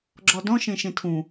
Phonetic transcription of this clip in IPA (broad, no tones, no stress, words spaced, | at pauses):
ɡ͡ǁɔdɔ̃ʃẽ ʃẽtʰũ